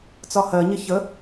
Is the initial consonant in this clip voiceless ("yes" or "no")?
yes